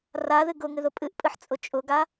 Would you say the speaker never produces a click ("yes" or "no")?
yes